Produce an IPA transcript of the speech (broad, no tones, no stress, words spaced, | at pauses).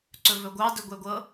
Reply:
ǀɵvɵɡʷɑ dɵɡʷɛɡʷɤ